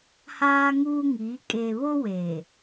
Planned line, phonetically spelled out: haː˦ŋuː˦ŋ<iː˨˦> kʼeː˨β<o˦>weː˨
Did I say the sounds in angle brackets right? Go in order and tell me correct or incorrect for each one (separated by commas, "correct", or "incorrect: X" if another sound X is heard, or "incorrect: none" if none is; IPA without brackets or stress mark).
correct, correct